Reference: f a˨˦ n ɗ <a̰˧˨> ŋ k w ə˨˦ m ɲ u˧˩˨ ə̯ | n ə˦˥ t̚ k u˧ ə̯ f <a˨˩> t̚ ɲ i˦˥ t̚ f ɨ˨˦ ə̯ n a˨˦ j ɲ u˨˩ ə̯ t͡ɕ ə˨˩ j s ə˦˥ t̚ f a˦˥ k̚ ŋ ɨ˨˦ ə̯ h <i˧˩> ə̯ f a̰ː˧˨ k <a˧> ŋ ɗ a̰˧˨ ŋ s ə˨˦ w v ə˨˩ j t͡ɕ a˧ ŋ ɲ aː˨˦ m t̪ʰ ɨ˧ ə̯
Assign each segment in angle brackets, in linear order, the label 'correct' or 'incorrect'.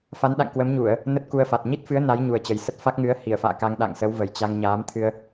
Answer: correct, correct, correct, correct

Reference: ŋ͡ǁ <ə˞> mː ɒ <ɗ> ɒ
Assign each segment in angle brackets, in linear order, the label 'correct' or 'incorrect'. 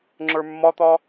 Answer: correct, incorrect: t̪

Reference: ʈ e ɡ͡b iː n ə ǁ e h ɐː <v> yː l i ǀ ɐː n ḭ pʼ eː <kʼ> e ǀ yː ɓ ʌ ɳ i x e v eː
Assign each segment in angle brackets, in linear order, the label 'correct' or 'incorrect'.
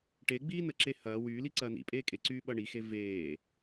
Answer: incorrect: w, correct

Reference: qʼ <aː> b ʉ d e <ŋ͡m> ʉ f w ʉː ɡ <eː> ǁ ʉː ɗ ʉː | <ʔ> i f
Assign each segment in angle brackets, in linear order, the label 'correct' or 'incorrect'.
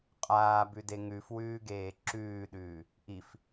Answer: correct, incorrect: ŋ, correct, correct

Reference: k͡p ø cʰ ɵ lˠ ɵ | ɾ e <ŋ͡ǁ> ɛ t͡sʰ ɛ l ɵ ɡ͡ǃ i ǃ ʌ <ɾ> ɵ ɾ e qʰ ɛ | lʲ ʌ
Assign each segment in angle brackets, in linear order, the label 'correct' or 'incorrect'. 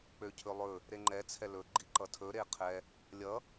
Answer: incorrect: ŋ͡ǃ, incorrect: tʰ

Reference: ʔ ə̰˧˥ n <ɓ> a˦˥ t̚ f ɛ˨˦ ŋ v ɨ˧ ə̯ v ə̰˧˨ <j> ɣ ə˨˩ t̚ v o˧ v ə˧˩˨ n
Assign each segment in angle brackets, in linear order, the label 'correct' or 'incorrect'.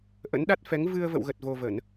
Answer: incorrect: ɗ, incorrect: w

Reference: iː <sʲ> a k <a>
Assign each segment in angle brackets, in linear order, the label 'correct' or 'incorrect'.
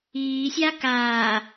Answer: correct, incorrect: aː

